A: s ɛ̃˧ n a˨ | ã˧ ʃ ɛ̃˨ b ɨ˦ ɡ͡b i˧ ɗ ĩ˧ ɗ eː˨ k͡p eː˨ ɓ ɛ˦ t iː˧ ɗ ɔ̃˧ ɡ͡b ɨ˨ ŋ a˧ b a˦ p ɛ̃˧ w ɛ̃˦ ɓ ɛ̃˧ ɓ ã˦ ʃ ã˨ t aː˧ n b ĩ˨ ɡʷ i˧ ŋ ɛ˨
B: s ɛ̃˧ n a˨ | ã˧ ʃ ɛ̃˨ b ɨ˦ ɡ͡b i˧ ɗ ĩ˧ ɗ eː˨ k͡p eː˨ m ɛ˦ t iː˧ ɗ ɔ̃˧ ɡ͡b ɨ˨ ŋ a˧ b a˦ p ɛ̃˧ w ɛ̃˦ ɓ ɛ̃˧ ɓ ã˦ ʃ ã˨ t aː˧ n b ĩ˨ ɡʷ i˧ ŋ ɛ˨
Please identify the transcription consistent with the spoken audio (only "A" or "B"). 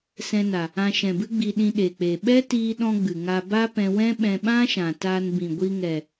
A